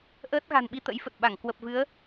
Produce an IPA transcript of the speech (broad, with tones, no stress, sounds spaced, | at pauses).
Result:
ʔ əː˦˥ t̚ ɣ a̤˨˩ n ɓ i˧ t̪ ə̰˧˥ j f ə˨˩ t̚ ɓ a˧˩ ŋ k w ə˨˩ p̚ v ɨ˨˦ ə̯